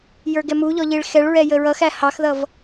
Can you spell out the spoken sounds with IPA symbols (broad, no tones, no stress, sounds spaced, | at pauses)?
j ə˞ ɡ ɛ m u ʎ ɔ ʎ i ɭ x ɛ ɭ ɹ ɛ j ə ɹ ʌ x æ h ɑ x ð ʌ v